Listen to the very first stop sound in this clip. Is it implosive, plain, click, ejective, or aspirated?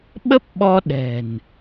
implosive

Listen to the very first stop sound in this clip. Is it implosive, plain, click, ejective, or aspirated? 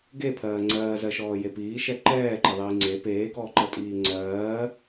plain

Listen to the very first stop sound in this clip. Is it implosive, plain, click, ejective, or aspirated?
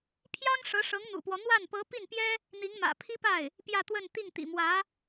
aspirated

